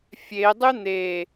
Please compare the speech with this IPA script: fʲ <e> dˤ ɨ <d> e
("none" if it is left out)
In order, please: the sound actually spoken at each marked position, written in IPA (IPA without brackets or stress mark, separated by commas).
e, n̪